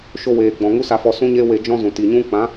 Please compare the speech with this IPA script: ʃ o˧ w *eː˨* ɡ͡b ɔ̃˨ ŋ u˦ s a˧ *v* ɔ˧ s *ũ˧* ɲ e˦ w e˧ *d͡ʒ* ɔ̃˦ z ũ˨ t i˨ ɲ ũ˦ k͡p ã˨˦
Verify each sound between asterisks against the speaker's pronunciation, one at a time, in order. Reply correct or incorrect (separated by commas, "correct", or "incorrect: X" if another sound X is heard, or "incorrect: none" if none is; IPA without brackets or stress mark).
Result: correct, incorrect: f, incorrect: ũ˦, correct